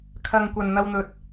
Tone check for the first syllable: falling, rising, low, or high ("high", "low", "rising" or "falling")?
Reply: low